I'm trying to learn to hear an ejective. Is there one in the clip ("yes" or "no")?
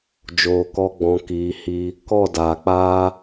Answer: no